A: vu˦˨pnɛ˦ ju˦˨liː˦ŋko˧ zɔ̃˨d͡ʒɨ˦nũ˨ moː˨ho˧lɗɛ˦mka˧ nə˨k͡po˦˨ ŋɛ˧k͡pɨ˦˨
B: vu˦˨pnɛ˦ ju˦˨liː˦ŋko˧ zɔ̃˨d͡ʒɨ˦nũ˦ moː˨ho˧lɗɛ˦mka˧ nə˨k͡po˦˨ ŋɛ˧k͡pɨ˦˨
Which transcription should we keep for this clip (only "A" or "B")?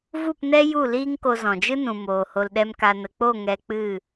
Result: A